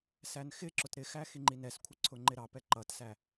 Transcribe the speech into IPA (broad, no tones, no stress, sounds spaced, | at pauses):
s æ n x ɪ ǁ ʊ t ɾ ɪ x æ x i ŋ͡ǃ i n ɛ s kʷʰ ɪ ǀʰ ʊ ŋ͡ǃ ɪ ɾ ɑ p ɛ ǃ ʌ t s æ